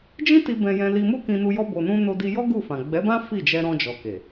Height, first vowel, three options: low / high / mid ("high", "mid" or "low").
high